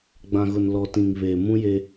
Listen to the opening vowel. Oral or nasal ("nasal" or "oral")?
nasal